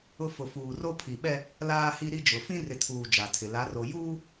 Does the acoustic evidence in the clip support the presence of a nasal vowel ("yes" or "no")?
yes